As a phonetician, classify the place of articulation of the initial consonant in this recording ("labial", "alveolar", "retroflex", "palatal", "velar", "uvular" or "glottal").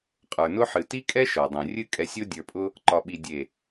uvular